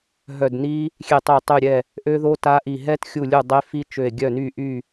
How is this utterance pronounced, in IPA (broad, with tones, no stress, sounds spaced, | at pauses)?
ɦ œ˧˩ d n i˦˥ | xʲ e˧˩ tˤ ə˧˩ o̯ tˤ y˧˩ ɾʲ ɛ˧˩ | ʔ ø˦˥ ð o˦˥ t a˦˥ ʔ i˧˩ ɦ ɛ˦˥ t xʲ u˧˩ lʲ u˧˩ dˤ e˦˥ f i˦˥ t͡ʃ ø˧˩ e̯ ɡʲ œ˧˩ n y˧˩ ʔ y˧˩